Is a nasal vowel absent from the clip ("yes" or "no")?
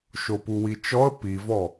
yes